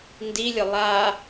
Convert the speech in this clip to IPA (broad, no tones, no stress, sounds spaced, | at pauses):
n d i lʲ ʊ lˠ a